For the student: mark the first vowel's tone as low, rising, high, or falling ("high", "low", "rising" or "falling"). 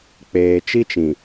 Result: low